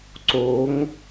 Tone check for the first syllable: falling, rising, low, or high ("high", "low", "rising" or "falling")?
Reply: rising